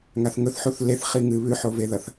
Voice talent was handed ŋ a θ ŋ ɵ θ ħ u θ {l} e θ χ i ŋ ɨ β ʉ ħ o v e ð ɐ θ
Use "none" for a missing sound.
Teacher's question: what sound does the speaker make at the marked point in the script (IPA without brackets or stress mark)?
l